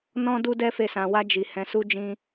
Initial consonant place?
alveolar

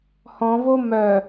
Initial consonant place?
glottal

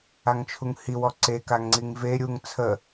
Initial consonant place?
velar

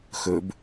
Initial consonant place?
velar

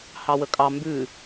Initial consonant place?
glottal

